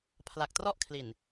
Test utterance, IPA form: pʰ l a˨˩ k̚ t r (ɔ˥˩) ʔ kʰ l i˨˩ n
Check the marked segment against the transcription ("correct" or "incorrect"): correct